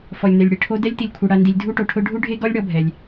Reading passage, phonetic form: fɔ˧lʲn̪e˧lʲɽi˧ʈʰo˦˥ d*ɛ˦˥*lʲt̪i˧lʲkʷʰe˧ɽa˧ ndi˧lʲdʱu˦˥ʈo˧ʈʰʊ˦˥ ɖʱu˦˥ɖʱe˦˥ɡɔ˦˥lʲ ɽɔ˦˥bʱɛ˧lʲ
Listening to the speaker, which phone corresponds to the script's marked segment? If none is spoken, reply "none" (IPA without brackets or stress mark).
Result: ɛ˦˥